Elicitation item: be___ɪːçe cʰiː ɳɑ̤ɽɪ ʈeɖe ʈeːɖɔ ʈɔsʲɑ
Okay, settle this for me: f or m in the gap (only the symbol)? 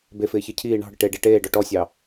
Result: f